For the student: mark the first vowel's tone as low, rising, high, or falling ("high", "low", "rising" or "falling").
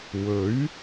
rising